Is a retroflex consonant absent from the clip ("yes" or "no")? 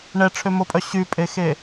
no